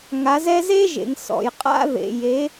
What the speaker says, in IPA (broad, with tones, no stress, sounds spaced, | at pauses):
ŋ a˨˦ z ɛ˦ z e˦ ʒ ḛ˨ ŋ s ɔ̰˨ j qʼ a̰˦ ð ḛ˨ j e˨˦